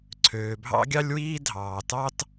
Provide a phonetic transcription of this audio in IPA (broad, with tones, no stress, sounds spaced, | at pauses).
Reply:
ǀʰ øː˩ bʱ ɑ̰˥ ɡʲ ɑ˥ lʲ w iː˥ dʱ ɑː˩ t ɑ˥ t